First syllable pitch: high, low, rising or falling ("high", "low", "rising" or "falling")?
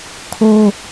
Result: high